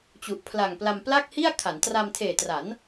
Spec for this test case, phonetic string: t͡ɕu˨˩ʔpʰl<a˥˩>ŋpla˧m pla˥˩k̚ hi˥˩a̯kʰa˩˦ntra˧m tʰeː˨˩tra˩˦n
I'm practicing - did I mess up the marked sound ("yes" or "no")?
yes